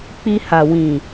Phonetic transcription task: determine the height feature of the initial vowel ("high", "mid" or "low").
high